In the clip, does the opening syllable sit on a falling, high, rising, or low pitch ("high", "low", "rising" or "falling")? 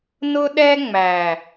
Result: high